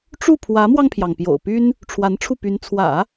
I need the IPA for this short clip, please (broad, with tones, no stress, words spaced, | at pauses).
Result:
ʈ͡ʂu˥˩pʰwä˧˥mwɑ˧ŋpʰjɑ˩ŋ pjo̰˨˩ʊ̯py˥n | ʈ͡ʂʰwa˧˥nʈ͡ʂʰu˥˩py˧˥n t͡sʰwä̰˨˩˦